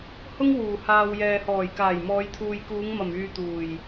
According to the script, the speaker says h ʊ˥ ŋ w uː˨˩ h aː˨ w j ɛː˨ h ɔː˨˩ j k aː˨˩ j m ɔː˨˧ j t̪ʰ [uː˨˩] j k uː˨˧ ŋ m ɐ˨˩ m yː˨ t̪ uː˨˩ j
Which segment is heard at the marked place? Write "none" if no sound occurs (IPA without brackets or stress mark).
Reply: uː˨